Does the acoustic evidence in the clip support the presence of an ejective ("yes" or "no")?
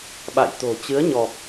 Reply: no